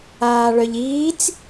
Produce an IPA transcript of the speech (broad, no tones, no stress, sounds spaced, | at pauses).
aː ɭ œ ʎ iː t͡s